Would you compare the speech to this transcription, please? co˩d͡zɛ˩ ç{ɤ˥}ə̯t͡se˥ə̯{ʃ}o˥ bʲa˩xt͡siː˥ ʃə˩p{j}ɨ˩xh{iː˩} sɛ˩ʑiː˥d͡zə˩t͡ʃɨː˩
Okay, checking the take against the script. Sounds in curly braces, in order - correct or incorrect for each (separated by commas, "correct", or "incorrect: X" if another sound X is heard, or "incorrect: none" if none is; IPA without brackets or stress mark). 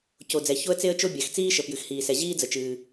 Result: incorrect: o˥, incorrect: t͡ʃ, correct, correct